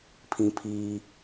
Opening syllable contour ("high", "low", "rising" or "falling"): high